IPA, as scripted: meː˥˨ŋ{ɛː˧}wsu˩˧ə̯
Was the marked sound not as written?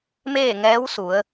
yes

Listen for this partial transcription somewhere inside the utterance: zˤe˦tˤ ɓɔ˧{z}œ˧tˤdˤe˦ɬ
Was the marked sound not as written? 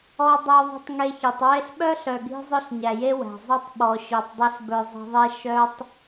yes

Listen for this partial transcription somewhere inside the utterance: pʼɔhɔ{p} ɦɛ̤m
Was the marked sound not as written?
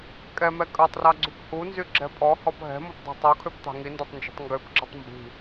no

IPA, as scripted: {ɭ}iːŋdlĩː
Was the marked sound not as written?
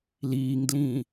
yes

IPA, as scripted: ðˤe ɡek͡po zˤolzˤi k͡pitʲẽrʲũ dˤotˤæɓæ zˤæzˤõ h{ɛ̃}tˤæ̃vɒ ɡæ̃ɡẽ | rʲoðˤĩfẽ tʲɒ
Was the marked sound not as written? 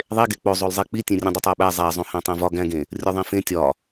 yes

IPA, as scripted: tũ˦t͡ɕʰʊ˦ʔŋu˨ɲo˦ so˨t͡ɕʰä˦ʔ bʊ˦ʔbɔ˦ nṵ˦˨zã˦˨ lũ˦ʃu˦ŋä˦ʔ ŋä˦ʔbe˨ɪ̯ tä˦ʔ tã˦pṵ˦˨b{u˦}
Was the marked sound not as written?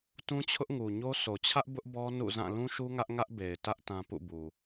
yes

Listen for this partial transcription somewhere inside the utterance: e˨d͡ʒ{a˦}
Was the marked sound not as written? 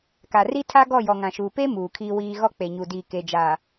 yes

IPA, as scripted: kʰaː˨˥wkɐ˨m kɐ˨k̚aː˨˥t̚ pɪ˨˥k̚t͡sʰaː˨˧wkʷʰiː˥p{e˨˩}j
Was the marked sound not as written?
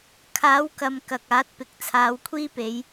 yes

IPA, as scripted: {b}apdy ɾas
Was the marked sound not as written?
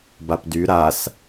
no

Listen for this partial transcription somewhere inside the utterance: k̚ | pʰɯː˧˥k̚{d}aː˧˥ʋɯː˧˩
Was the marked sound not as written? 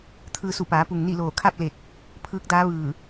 no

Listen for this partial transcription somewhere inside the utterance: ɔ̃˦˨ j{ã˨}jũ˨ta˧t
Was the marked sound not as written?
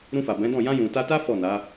yes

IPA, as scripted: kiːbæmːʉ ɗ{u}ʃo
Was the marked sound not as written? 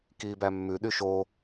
yes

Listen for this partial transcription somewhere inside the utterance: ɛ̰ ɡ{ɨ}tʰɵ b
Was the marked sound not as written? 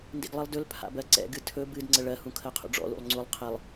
no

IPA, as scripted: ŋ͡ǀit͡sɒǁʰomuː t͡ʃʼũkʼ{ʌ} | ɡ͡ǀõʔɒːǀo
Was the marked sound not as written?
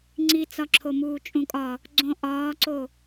yes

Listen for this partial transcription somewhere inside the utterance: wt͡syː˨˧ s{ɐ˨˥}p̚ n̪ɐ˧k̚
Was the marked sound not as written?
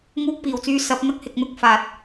no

